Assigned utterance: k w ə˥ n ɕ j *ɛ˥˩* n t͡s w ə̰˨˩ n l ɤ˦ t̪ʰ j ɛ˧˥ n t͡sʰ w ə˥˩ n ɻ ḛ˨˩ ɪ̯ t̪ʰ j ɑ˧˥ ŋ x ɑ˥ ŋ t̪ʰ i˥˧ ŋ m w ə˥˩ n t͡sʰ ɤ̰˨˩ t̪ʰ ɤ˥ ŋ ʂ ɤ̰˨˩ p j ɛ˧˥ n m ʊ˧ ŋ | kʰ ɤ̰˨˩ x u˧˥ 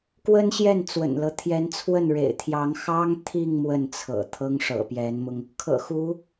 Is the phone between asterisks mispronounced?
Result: no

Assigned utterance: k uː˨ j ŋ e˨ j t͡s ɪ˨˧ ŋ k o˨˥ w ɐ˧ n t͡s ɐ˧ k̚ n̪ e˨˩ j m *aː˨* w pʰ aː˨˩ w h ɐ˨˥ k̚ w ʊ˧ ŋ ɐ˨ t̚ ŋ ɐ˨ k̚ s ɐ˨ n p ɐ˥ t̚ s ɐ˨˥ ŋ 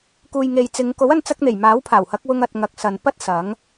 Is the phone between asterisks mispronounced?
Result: yes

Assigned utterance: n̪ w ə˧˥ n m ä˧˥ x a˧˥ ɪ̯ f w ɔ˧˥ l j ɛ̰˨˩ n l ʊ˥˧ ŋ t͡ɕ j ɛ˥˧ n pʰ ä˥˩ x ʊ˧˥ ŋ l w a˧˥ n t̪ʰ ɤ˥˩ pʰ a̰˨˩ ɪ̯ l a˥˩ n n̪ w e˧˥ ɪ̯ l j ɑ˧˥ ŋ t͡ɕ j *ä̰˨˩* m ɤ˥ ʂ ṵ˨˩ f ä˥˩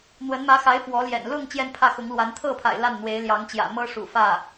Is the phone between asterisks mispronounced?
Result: no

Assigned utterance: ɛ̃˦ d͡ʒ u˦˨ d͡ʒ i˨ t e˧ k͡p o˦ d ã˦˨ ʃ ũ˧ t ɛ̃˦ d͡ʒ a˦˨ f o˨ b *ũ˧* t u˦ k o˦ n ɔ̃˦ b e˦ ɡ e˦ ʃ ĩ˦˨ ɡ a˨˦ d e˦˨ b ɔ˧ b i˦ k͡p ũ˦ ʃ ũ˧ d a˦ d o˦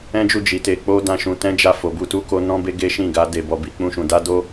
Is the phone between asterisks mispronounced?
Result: yes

